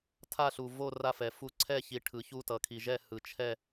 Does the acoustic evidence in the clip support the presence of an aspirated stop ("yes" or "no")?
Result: yes